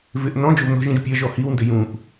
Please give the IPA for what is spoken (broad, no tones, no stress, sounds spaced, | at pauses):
v ɪ ʔ n ɔ̃ d͡ʒ o v n ɔ̤ ʒ ĩ ʒ pʲ ɐ ʒ ɔ h i w n d ɪ j ũ ʔ